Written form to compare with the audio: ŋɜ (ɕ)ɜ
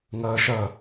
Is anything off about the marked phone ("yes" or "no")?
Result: yes